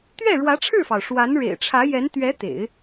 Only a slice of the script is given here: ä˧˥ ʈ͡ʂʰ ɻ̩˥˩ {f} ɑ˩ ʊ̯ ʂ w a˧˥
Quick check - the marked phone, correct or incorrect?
correct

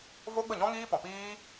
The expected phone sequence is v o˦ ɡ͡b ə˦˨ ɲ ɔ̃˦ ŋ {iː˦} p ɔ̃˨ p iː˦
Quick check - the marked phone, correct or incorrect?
correct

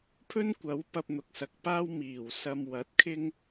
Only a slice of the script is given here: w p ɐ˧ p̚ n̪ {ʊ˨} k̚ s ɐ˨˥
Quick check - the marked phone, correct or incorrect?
correct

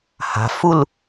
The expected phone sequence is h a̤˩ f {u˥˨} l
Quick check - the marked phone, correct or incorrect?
correct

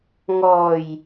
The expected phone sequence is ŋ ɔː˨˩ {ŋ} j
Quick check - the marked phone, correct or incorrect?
incorrect: none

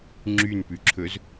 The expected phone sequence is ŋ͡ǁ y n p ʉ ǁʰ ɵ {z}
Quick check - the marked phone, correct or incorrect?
correct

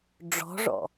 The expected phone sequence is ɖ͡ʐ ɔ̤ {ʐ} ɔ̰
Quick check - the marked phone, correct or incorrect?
correct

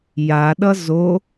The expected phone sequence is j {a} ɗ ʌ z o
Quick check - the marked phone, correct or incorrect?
correct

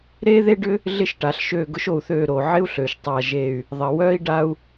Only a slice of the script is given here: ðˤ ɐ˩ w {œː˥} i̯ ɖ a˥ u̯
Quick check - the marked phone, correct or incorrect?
correct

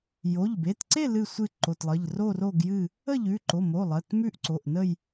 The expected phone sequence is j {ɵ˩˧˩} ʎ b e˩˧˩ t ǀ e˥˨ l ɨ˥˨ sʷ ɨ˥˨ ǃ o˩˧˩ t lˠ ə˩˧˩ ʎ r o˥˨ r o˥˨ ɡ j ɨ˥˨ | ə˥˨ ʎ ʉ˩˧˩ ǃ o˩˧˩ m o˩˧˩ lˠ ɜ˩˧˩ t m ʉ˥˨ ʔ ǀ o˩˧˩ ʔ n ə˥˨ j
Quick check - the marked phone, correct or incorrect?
incorrect: o˩˧˩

